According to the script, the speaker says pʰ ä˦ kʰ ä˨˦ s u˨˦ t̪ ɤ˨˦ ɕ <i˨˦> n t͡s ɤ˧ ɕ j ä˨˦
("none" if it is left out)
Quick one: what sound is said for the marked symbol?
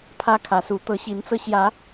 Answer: i˨˦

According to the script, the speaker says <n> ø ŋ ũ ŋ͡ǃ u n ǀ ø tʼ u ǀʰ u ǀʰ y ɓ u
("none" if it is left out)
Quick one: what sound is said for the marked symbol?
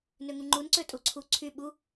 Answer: n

